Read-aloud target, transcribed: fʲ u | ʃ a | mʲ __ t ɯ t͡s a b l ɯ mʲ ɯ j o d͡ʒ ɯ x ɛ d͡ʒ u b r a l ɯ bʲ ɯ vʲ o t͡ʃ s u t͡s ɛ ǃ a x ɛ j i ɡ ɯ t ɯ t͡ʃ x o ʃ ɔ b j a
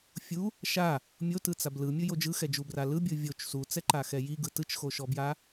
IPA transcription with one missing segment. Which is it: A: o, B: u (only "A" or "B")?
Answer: A